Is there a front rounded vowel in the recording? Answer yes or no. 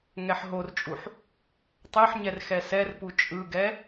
no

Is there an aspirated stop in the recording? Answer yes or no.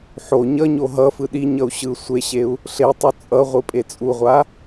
no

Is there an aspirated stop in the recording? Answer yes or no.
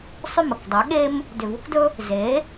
no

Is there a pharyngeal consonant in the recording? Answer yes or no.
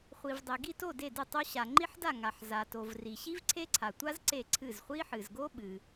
yes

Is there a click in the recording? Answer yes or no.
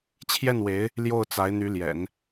no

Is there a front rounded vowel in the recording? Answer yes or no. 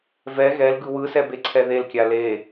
no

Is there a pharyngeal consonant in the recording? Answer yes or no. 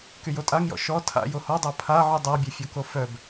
yes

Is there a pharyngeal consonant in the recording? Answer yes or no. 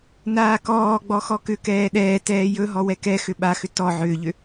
yes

